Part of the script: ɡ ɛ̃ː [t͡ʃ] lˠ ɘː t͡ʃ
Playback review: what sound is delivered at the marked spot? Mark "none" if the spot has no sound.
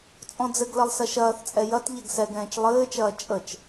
t͡ʃ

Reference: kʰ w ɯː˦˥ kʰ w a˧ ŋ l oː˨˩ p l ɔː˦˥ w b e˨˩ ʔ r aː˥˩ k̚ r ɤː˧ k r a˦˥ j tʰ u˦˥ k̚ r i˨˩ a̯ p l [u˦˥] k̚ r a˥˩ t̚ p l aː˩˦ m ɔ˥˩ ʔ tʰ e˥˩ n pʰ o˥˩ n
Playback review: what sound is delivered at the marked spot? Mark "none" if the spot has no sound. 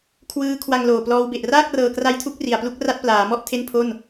u˦˥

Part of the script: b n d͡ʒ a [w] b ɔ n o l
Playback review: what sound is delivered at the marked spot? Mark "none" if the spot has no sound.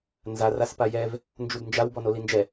w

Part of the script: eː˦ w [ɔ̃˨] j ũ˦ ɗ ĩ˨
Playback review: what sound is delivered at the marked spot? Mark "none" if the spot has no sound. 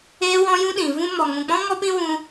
ɔ̃˦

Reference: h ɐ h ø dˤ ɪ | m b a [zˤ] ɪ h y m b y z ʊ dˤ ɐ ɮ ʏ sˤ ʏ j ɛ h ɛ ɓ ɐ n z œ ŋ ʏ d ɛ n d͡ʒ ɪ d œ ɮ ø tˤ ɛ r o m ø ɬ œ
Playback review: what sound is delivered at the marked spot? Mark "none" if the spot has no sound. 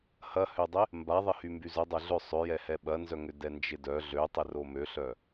ðˤ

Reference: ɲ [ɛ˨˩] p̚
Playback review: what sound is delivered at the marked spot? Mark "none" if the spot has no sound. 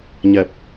ɛ˨˩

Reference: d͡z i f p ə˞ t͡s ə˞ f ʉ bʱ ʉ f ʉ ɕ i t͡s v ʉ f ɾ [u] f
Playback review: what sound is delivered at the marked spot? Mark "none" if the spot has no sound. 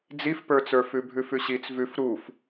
u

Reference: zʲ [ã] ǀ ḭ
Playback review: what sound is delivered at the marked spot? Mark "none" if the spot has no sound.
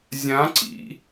ã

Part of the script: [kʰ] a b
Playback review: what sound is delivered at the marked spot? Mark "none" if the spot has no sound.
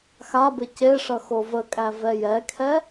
x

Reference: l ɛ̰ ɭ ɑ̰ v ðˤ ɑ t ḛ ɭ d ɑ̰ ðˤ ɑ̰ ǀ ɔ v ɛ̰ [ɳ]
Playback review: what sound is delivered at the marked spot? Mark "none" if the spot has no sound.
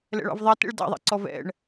ɳ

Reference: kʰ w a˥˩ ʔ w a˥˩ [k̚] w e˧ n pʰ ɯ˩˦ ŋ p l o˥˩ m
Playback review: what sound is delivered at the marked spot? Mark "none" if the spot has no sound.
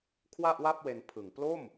p̚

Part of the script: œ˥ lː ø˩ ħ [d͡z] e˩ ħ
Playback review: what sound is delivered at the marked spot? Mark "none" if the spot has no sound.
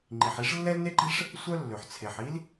t͡sʰ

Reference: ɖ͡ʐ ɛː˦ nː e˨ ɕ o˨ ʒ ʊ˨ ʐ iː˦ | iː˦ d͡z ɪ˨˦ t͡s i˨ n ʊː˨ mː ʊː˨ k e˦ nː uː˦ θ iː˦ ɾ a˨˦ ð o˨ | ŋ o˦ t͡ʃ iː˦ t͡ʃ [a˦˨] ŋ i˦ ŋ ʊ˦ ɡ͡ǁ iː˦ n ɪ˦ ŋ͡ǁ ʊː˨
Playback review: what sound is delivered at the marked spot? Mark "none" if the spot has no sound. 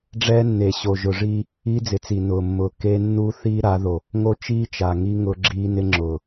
a˨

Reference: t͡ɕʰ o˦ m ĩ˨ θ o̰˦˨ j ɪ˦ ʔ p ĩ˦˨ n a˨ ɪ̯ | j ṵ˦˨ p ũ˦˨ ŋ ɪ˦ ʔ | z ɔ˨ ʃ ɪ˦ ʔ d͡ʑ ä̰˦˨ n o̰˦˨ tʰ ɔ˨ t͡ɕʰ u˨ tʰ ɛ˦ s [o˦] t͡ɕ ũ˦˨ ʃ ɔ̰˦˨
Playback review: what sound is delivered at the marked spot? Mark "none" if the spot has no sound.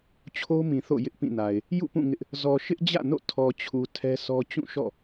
ɔ˦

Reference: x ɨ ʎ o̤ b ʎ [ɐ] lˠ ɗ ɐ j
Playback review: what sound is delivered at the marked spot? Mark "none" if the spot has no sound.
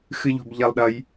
ɐ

